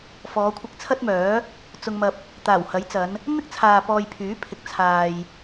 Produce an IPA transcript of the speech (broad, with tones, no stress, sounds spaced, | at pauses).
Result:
f ɔː˨˧ kʷʰ ɪ˧ k̚ t͡sʰ ɐ˥ t̚ m œː˨˥ | t͡s ʊ˧ ŋ m ɐ˧ p̚ | t̪ aː˨˩ w h ɐ˨˥ j t͡s ɐ˨˧ n | n̪ ɪ˥ k̚ t͡sʰ aː˨ p ɔː˧ j pʰ yː˨˥ pʰ ɪ˨ k̚ t͡sʰ aː˨ j